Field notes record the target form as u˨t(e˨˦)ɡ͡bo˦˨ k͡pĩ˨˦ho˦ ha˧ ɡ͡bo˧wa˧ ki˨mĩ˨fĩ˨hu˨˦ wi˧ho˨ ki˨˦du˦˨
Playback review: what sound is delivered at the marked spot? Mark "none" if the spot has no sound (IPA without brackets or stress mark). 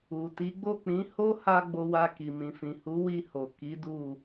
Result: i˨˦